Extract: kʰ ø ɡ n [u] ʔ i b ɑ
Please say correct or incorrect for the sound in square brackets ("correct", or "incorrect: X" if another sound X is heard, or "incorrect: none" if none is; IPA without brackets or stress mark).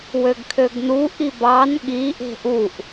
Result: correct